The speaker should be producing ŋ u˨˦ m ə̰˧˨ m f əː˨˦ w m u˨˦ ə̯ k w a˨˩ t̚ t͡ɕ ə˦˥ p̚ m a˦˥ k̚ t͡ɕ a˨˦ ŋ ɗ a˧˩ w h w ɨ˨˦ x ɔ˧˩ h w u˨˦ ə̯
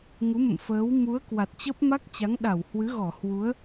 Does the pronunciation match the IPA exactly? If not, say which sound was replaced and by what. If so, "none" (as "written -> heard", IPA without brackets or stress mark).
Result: x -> ɣ